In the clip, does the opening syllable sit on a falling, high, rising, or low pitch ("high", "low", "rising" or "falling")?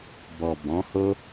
low